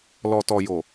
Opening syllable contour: low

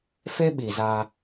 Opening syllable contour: high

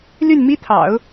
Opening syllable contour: falling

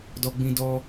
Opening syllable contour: high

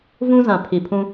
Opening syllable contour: high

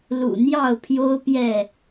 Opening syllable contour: low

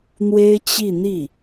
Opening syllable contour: high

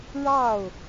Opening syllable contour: falling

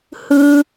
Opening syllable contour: high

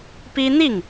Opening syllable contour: high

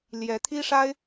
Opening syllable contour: rising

